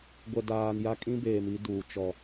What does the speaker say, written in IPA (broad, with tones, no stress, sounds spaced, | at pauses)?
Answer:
ɡʷ ɛ˨ d aː˨ n j a˦ kʼ ĩ˦ b eː˨ m i˦ d uː˨ t͡ʃ ɔ˨